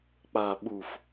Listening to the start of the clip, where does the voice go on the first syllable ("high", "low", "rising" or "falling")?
low